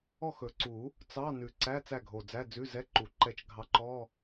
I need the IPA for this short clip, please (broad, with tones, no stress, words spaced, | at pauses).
ɔ˥˨xɵ˨˩ǀu˨˩˦ | t͡sɑ˧˥˧ nʉ˨˩ǀæ˧˥˧ t͡sæ˥˨ɡʱo˨˩d͡zæ˧˥˧ d͡zʉ˧˥˧zɛ˧˥˧ǃu˨˩˦ ǃɛ˧t͡ʃ ɡʱɑ˧ǃɔ˧˥˧